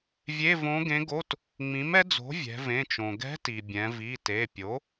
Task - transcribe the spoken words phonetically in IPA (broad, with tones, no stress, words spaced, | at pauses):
vʲe˧˥˧võ˧˥ɡẽ˧˥ɡo˧˥˧t | ŋ͡mĩ˩˥mɛ˧˥d͡zo̤˩˥ vʲɛ̤˩˧vẽ˩˧˩t͡ʃõ˩ ɡɛ̤˧˥ti˩ bʲɛ̃˩˧vi˩˧˩te˩˧˩pʲo˩˥